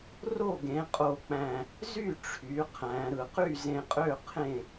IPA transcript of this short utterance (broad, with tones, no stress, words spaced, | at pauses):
ro˥˨ɡẽ˩˧qʼo˨˩k͡pæ̃˨˩ | zy˥˨ʈ͡ʂʰy˩˧ qʰæ̃˩˧ɾɯ˨˩ qy˥˨zẽ˧qʼø˥˨ qʰẽ˥˨